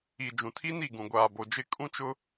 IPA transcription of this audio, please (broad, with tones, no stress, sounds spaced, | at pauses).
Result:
i˨ d͡ʒ ũ˨ tʰ i˦ n i˦˨ ɡ ũ˨ ɡʷ aː˨ b o˨ d͡ʒ ɪ˦˨ kʼ ũ˦ t͡ʃ ʊ˦